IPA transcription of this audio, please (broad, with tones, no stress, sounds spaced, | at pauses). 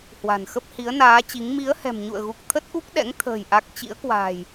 h w a̤˨˩ n x ə˦˥ p̚ h i˨˦ ə̯ n aː˨˦ t͡ɕ i˨˦ ŋ m i˨˦ ə̯ h ɛ̤˨˩ m ɲ ṵ˧˨ ə̯ ɣ u˨˩ k̚ t̪ʰ ə˦˥ t̚ ʔ u˦˥ k̚ ɗ ɛ̰˧˥ ŋ t̪ʰ ə̤ː˨˩ j ʔ a˦˥ k̚ t͡ɕ ḭ˧˥ ə̯ k w a̤ː˨˩ j